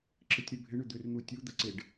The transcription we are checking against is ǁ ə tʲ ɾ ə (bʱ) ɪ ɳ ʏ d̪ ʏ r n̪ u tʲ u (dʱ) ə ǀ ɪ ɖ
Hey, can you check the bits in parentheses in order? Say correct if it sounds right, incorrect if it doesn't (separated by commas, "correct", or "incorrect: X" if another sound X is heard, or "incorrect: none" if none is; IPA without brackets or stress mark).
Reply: correct, incorrect: d̪